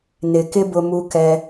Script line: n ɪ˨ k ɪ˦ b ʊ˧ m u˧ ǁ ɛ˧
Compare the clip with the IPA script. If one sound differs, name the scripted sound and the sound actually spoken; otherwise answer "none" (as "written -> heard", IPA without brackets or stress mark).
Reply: ǁ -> k